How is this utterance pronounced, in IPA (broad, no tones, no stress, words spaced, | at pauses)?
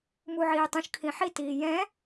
muʕiːtˤũʃ kʰĩħitiː jɛ̃